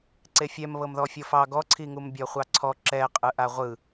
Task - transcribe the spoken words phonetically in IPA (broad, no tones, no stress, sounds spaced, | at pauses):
ǀ e fʲ ɛ m β ɤ m ð ɔ fʲ ɤ f ɑ ɡ ɔ ǀʰ i ŋ u m bʲ ɔ χʷ ɑ ǀʰ ɔ ǁ ɛ qʼ ɯ ʔ a ʁʷ ɯ